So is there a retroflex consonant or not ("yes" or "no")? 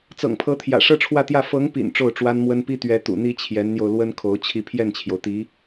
yes